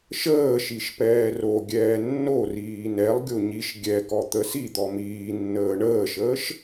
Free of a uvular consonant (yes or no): yes